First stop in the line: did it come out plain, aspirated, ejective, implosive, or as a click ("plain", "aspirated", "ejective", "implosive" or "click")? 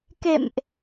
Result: plain